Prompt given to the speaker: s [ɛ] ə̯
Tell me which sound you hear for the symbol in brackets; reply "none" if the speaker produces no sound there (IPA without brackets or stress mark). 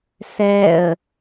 ɛ